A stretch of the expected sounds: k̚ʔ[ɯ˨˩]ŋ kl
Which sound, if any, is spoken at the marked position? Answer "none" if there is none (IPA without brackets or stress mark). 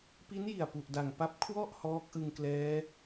ɯ˧